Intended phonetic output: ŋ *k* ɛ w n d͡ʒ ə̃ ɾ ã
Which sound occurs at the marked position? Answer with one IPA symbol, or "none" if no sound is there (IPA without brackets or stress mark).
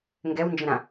ɡ